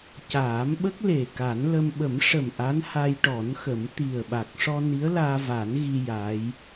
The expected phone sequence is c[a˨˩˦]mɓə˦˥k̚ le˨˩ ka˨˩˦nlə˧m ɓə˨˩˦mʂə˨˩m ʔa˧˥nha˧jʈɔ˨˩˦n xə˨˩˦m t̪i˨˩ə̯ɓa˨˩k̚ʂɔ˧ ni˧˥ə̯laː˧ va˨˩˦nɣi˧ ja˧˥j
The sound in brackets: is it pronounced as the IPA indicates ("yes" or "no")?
no